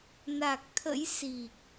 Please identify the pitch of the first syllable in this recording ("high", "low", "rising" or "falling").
low